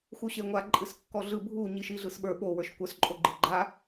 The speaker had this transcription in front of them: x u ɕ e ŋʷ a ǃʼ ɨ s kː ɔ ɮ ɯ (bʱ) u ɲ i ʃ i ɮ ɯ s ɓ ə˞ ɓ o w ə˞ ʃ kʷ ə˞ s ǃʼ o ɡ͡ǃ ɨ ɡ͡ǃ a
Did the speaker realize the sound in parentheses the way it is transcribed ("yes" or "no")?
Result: yes